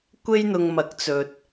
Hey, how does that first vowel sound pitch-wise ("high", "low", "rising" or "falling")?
high